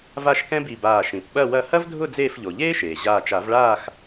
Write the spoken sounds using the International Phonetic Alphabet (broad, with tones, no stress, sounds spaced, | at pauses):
v a˥˨ ʃ k ɛ̃˥ b i˧˩ b aː˧˩ ʃ ĩ˩ p ɓ ɐ˥˨ w ɐ˥˨ h ɐ˥ v dʱ ʊ˥˨ d͡z eː˥˨ f ʎ o˩ ʎ eː˥ ʃ eː˩ ʑ aː˧˩ t͡ʃ a˨˩˦ v ɭ aː˥˨ x